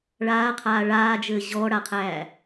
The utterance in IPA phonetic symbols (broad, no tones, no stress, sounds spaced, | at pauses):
ɭ aː qʰ aː ɭ aː d͡ʒ ɘː ʑ ɔ ɽ a qʰ æː